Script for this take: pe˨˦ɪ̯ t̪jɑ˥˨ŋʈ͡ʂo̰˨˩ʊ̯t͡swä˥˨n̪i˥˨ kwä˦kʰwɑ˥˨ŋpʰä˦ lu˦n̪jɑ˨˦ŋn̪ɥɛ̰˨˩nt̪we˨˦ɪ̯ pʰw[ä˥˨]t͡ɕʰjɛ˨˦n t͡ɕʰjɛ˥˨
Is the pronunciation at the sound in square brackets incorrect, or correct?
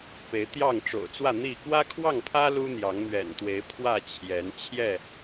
correct